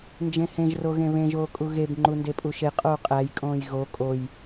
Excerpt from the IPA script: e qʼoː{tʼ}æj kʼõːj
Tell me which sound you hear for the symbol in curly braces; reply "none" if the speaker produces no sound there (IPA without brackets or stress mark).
qʼ